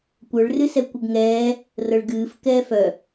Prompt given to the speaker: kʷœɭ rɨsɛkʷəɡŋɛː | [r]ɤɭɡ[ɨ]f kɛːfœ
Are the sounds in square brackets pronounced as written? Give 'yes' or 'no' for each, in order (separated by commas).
yes, no